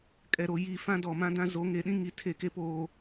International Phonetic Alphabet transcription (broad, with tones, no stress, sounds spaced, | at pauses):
kʼ ɛ˨ ɾ o˨ j i˦˨ f ã˦ d ɔ˨ m ã˦ d ã˦ z o˨˦ ŋ e˨ ɗ ĩ˦ ŋ i˨ tʰ e˦˨ k e˦ p oː˨